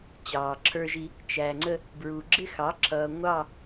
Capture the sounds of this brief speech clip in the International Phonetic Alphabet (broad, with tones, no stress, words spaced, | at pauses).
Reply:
t͡ɕɑː˨ǁʰə˞˦ʒi˦ | t͡ʃæ˨ŋ͡ǀə˦ | bɹu˨ɡ͡ǁɪ˦xɑ˨˦ǁʰʌː˨ ŋʷɑ˦˨